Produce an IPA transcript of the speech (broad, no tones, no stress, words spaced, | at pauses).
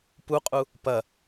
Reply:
puqʼu | pɐ